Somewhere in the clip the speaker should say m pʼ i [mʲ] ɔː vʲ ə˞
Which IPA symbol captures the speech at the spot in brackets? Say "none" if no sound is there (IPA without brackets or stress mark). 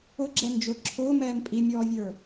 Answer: mʲ